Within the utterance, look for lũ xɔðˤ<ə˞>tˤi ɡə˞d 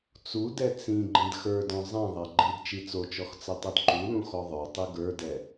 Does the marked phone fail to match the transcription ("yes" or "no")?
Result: no